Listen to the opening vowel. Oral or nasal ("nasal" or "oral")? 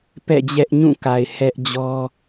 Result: oral